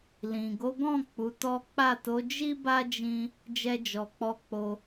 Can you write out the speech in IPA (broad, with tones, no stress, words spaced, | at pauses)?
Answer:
lĩ˨ ɡo˨˦ɡɔ̃˦˨ k͡pu˨˦tɔ˦ k͡pa˦˨ to˨˦d͡ʒi˦ba˦ d͡ʒĩ˦ | d͡ʒɛ˧d͡ʒɔ˨k͡pɔ˧k͡po˧